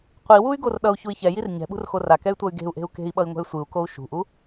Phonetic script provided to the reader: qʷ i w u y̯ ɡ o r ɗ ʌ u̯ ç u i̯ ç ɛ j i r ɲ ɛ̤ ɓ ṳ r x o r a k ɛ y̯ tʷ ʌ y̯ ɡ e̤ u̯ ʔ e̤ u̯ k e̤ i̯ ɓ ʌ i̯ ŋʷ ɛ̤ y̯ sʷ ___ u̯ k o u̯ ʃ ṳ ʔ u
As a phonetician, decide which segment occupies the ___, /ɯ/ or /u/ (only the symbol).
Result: ɯ